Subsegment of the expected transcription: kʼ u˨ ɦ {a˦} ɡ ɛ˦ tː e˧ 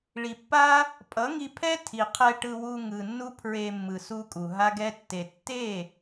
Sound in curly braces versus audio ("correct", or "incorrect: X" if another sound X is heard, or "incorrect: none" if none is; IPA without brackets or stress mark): correct